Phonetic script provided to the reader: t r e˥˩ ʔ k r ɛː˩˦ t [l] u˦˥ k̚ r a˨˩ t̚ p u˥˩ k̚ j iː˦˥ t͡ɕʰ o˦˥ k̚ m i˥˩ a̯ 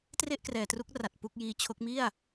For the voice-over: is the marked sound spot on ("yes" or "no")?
no